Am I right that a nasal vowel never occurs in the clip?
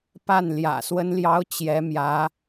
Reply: yes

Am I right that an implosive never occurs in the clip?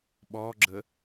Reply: no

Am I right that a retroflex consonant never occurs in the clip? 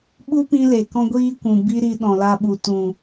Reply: yes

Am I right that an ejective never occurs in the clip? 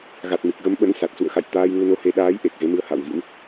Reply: yes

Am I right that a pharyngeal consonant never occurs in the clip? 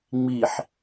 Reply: no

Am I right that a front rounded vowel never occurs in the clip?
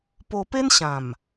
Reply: yes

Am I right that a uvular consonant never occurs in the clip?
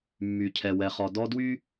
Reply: no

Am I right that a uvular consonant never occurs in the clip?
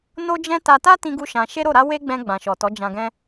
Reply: yes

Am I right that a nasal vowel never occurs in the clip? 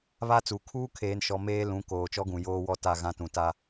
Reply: no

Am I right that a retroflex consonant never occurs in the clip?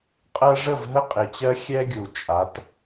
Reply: no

